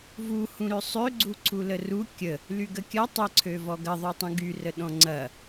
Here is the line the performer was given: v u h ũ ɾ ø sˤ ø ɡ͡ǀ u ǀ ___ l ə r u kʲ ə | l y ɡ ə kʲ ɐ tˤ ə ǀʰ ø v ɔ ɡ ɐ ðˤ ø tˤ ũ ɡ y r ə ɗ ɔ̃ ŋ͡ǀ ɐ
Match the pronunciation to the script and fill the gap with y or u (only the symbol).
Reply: u